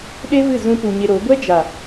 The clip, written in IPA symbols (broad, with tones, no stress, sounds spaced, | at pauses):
ɗ e˦ v ɨ˦˨ z ũ˧ p u˨ ɲ e˧ ɾ o˨˦ ɡʷ ɛ˦ d͡ʒ a˨